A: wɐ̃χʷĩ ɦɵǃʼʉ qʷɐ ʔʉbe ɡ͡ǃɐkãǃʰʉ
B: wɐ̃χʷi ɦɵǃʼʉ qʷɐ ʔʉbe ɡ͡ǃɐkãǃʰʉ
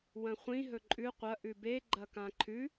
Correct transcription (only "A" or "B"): A